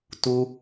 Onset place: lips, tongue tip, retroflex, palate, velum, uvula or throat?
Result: tongue tip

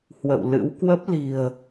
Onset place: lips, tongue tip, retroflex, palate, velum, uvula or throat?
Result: throat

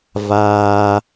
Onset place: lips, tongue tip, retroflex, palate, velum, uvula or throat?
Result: lips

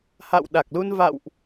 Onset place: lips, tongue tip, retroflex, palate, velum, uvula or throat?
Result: throat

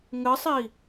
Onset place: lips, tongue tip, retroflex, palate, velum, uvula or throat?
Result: velum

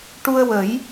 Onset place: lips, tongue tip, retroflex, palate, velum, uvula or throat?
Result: retroflex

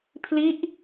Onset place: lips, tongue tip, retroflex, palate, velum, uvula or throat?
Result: lips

